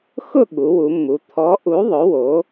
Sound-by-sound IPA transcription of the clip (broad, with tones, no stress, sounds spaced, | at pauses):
x ʊ˥˨ ɠ u˩˧ w u˩˧ mː u˩˧ t̪ʰ ɔ˨˥ ʔ u˨˥ ðˤ ʊ˨˥ w o˨˥